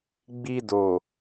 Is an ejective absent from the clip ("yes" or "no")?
yes